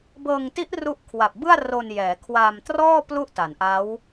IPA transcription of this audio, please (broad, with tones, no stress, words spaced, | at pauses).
bɤː˧ŋti˦˥ʔ ru˦˥ʔkʰwa˨˩p̚bɯ˥˩a̯ ro˧njɛː˩˦kʰwaː˧mtrɔː˥˩ plu˥˩ʔta˩˦nʔa˦˥w